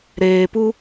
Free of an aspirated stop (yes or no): yes